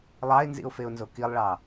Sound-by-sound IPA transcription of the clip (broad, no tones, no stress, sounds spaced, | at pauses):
lˠ ɑ ɪ̯ n z ḭ ʊ̯ f e ʊ̯ n z o k i lˠ ɭ ɑ